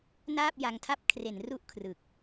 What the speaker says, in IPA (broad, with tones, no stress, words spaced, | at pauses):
naː˥˩p̚ja˧ŋtʰa˥˩p̚ kʰre˩˦n ru˥˩ʔkʰrɯ˨˩k̚